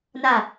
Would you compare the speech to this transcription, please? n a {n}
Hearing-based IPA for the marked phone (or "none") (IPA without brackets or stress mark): none